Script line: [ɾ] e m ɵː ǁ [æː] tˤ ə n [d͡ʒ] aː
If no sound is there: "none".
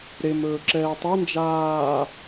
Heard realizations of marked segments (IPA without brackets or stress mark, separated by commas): ɾ, ɛː, d͡ʒ